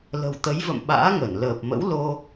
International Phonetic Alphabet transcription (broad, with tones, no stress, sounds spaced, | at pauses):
l ə̤˨˩ w t̪ ə˨˦ j v ə̰˧˨ m ɓ a̰ː˧˥ ŋ ə˧˩ n l əː˨˩ p̚ m ə̰˧˥ w l o˧